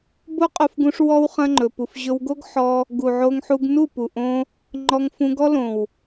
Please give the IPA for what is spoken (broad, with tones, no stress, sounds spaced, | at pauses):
b o˦ qʼ o˧ f ɡ ũ˧ ʂ w ɔ˦ w χ ɐ̃˦ ŋ͡ǃ ɵ˨ p u˨ f ʑ ɵ˧ w ɡ o˦ ɡ ħ ɔ˧ | ɡ u˨ ʕ o˧ ŋ ħ u˧ ɡ n u˦˨ p u˨ ʔ õ˧ | ŋ͡ǃ ɔ˧ ŋ f ũ˧ ɡ ɔ˦ l õ˨ w